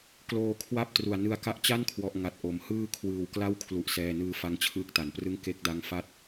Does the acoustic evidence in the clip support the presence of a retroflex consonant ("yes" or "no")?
no